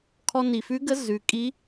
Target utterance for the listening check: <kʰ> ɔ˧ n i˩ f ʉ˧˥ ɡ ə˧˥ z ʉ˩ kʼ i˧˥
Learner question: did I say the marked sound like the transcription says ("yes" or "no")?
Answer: yes